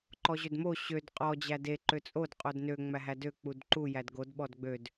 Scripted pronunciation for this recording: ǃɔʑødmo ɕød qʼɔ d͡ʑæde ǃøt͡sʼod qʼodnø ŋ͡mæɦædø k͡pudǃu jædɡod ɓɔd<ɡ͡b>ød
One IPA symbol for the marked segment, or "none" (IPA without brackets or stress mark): ɡ͡b